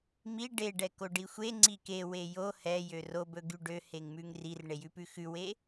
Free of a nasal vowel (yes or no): yes